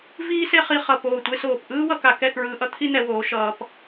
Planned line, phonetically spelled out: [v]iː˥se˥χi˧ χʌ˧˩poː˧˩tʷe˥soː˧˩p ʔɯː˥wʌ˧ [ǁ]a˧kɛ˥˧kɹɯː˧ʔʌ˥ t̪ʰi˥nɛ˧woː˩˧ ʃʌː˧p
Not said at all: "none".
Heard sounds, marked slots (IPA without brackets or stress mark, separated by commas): v, k